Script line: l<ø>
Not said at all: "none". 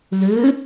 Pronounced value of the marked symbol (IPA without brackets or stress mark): ø